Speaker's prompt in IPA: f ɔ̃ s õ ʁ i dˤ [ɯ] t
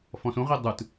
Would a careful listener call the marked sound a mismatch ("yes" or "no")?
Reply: no